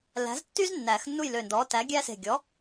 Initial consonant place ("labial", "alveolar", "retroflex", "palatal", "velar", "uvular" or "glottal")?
alveolar